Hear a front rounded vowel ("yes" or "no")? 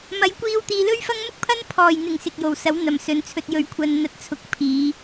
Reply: no